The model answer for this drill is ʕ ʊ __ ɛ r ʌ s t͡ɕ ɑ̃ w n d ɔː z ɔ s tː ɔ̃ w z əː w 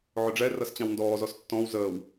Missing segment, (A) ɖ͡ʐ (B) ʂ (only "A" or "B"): A